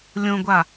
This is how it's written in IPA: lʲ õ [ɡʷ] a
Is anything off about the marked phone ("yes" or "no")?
no